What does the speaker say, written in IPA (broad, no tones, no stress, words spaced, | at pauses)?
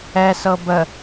ɛsɤ bə